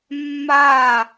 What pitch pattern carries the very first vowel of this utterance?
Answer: falling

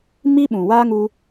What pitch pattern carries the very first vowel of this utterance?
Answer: high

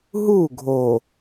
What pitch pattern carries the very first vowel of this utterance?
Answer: falling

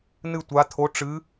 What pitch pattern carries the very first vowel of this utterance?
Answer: falling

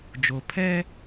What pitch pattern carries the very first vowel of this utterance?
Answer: low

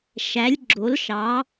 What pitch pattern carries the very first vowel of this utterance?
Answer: rising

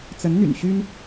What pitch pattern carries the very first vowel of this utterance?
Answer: rising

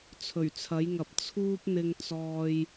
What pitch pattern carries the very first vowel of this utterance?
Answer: low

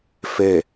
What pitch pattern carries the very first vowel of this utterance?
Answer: falling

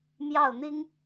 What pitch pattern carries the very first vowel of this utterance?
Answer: falling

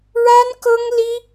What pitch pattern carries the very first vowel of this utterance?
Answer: high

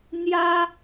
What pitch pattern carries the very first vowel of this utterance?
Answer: high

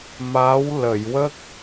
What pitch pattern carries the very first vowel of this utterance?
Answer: rising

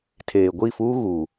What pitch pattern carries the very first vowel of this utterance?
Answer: low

